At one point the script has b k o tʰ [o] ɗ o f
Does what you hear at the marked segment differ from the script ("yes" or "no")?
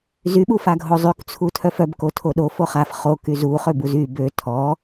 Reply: no